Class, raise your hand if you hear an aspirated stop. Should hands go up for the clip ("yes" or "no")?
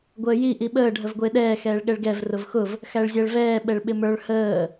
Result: no